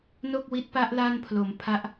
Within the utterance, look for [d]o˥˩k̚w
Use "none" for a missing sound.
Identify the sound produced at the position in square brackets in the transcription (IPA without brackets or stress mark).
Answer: n